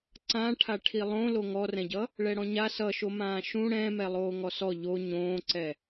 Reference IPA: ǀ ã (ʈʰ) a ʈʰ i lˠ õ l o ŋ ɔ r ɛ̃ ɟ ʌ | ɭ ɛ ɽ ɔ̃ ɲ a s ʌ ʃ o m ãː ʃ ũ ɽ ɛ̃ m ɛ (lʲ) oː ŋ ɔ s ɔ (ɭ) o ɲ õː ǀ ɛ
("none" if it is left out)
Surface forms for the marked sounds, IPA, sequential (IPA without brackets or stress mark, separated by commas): ʈʰ, lˠ, ʎ